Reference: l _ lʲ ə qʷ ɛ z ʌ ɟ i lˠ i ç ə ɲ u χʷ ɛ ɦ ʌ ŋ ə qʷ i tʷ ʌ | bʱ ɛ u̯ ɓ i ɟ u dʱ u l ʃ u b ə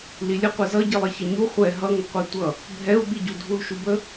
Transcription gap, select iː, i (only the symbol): i